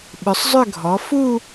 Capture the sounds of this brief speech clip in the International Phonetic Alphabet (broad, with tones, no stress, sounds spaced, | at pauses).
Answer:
ɓ ʏ˩˧ sˤ zˤ ʏ˥˧ ɡʱ ɔ˩˧ f u˥˧